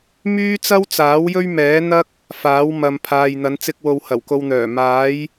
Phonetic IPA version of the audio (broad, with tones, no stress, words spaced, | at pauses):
myː˥t͡sɐ˥wt͡saː˨˥w jɵ˥ɥmɛː˨˥n̪ɐ˥k̚ | faː˨˥wmɐ˨m pʰaː˨jn̪ɐ˨˧nt͡sɪ˧k̚wo˨w hɐ˨˩wko˨wn̪œː˨˩ maː˨˥j